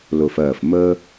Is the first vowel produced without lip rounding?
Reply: no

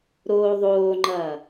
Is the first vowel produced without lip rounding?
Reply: no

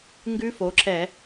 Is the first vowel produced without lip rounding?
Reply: no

